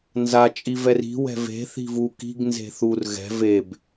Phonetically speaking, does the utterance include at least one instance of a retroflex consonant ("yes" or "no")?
no